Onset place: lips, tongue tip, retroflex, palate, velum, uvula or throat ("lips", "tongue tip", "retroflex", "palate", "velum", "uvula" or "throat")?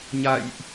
palate